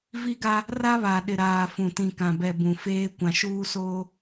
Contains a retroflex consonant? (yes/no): no